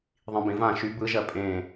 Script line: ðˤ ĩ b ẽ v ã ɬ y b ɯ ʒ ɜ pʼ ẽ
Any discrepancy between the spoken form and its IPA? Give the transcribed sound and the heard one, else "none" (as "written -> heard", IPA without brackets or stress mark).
ɬ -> ʃ